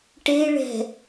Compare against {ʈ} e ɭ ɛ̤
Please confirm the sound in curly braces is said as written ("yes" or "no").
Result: yes